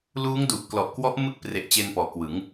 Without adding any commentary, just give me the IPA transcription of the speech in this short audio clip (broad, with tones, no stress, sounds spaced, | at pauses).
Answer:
l uː˦˥ ŋ d u˨˩ ʔ k l ɔ˨˩ ʔ k w ɔ˦˥ ʔ m ɯ˥˩ k̚ p r e˨˩ ʔ t͡ɕ e˧ n p ɔː˩˦ k w ɯ˩˦ ŋ